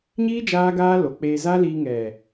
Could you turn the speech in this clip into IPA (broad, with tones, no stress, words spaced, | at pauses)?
ɲiː˦ d͡ʒaː˦ɡaː˦ lo˨k͡peː˧za˦liː˧ ŋɛ˨